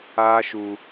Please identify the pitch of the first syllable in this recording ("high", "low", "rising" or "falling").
high